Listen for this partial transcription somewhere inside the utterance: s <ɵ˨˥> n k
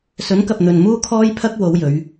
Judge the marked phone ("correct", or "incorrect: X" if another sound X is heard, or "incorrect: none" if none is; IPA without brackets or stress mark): correct